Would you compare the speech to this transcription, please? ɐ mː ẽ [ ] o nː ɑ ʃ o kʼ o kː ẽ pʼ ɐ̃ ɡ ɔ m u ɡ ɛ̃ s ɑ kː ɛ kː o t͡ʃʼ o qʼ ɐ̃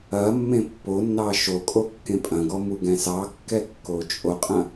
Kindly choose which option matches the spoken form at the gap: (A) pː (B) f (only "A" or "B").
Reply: A